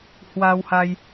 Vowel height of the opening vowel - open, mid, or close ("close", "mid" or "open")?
open